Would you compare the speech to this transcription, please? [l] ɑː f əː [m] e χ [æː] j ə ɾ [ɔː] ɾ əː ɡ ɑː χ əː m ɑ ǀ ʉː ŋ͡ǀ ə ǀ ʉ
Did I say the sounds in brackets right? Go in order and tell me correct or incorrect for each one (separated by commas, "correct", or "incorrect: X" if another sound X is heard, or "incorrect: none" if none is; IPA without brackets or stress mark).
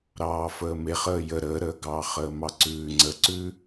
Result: incorrect: ɾ, correct, incorrect: əː, incorrect: əː